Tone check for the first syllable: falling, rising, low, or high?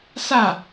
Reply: falling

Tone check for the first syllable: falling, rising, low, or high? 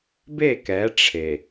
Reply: falling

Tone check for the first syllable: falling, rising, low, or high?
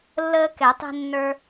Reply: high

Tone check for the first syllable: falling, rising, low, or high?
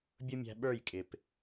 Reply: high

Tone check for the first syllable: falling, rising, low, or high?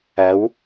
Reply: rising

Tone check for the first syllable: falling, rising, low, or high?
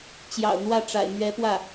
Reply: low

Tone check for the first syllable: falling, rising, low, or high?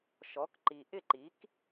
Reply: rising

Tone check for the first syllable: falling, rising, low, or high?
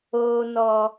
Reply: high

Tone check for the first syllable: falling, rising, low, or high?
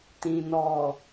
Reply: low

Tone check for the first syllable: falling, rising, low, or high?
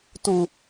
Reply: high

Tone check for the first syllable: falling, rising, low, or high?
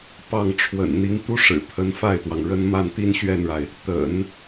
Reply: falling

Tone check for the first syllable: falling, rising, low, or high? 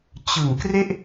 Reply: low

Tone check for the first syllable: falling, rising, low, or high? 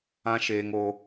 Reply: high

